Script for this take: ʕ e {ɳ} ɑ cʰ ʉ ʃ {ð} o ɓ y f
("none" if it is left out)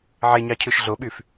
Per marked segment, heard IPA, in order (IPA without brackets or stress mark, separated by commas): ɲ, ɮ